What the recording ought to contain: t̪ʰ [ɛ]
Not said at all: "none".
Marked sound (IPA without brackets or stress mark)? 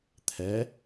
ɛ